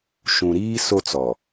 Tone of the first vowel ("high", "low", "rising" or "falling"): low